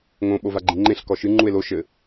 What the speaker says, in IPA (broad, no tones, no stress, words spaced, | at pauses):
ŋõ ɓovaɡ͡ǃĩŋ͡ǃẽɬ kɔʃɨ ŋ͡ǃue̯lo ʃɘ